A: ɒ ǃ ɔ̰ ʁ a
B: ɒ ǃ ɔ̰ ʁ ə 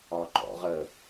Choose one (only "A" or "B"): B